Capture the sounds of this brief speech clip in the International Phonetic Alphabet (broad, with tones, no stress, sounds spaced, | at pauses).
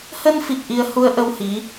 h ə˧ n f i˨˩ k̚ ʔ i˧ ə̯ h u˧ ə̯ ʔ ə˧ w h i˨˦